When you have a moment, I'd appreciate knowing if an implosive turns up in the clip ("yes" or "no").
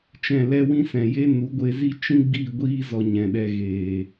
yes